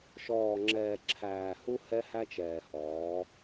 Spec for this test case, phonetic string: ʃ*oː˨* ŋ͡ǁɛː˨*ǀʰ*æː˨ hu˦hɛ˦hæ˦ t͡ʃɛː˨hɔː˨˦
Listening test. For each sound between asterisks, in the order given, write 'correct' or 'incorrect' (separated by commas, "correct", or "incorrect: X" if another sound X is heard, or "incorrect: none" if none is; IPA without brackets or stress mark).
incorrect: ɔː˨, incorrect: ǁʰ